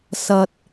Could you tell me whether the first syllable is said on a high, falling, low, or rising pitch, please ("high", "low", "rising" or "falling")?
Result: low